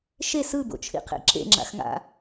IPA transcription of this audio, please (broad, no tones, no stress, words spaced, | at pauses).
ʃe sɯbo̰t͡ʃʰḭqʰḛ ǁḛŋ͡ǁa̰xŋa̰